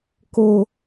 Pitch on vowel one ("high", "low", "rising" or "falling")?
low